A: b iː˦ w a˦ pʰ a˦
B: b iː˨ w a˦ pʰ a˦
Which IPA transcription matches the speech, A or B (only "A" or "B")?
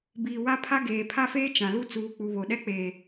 B